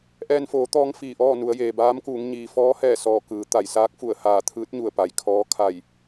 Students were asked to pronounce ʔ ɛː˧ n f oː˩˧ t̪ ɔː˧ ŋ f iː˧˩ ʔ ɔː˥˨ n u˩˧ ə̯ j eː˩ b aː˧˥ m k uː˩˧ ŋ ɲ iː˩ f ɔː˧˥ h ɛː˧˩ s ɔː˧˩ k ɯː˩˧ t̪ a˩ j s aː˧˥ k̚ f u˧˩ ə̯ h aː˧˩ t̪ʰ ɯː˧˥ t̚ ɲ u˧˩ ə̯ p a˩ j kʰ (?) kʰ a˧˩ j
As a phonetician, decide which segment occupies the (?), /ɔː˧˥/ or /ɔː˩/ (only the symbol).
ɔː˧˥